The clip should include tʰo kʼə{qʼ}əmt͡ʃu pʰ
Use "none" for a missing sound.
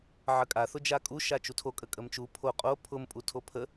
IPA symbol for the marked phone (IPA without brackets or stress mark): kʼ